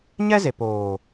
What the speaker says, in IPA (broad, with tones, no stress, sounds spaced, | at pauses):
ɲ ɛ˦ z e˨ p oː˨